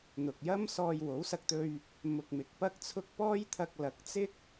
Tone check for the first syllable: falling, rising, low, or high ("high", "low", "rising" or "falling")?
low